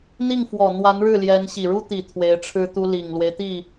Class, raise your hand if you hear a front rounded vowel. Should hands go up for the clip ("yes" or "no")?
no